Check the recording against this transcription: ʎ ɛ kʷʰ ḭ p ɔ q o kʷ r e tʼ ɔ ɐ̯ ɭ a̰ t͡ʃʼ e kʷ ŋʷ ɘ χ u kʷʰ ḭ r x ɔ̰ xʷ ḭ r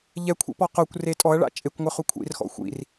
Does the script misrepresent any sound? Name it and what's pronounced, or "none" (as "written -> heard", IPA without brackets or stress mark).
none